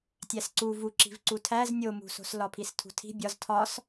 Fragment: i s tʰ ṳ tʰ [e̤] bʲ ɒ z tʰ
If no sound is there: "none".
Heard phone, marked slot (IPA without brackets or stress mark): i̤